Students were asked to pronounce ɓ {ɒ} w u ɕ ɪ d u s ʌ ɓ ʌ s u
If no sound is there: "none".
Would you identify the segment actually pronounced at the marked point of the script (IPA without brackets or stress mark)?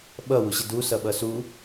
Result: ʌ